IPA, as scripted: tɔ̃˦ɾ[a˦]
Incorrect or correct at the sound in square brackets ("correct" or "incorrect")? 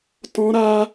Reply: correct